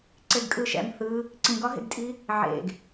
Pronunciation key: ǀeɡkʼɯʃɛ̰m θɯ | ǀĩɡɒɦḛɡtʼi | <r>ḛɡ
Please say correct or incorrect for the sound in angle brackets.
incorrect